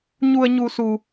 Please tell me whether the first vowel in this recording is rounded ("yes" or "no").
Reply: yes